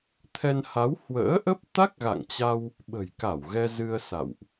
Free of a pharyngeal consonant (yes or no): yes